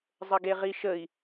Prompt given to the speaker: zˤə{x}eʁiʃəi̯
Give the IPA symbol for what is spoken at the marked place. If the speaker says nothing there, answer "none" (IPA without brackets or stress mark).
ɡ